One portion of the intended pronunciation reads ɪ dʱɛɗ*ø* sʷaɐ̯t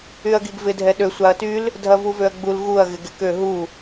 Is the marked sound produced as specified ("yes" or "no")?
yes